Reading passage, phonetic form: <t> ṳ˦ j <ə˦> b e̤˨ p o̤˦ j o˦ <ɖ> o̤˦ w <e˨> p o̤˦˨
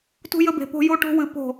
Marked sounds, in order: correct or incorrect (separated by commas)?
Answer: correct, correct, incorrect, incorrect